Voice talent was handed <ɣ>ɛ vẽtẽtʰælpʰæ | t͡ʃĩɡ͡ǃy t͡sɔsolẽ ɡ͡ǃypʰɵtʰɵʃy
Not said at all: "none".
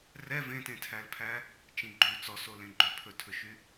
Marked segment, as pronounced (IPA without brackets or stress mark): r